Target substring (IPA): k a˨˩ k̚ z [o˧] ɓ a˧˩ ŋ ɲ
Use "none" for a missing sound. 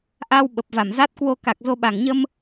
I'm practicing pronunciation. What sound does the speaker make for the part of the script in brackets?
o˧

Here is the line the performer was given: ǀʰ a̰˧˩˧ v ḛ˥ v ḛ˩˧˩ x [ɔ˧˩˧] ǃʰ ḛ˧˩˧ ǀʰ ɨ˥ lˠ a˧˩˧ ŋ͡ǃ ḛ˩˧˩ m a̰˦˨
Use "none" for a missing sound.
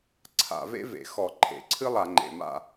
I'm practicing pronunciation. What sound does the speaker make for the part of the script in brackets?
ɔ˧˩˧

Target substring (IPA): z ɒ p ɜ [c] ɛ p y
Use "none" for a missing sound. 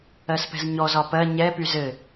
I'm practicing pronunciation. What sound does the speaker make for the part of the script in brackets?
ɲ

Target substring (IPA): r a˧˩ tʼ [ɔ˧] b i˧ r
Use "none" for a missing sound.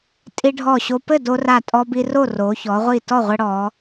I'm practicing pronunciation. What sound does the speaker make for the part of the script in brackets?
ɔ˧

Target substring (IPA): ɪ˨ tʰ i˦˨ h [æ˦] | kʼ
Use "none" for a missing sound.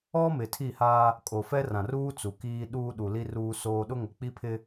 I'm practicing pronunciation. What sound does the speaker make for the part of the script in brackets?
a˦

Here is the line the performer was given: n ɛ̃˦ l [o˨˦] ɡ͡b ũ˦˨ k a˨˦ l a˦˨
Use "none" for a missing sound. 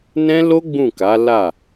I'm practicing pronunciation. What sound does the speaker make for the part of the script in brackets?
o˦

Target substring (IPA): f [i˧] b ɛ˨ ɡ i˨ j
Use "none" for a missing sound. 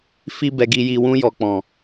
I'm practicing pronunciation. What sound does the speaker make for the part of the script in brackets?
i˧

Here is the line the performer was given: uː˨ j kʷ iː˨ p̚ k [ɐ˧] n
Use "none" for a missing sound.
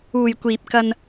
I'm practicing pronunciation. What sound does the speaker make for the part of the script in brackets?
ɐ˧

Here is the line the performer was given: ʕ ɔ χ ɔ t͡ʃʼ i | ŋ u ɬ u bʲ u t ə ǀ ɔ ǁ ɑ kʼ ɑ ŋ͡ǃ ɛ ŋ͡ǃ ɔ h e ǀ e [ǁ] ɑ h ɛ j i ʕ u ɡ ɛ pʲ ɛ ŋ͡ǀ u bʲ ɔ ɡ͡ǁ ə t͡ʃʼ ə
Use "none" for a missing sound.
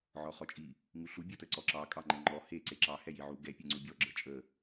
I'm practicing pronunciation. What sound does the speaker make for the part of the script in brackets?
ǁ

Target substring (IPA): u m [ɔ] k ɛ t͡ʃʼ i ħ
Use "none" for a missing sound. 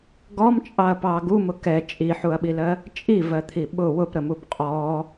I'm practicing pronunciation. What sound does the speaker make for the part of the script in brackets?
ʊ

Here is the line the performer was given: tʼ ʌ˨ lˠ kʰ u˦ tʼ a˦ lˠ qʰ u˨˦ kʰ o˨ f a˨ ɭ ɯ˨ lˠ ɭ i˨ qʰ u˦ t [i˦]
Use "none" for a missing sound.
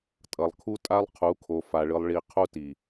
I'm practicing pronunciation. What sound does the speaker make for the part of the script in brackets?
i˨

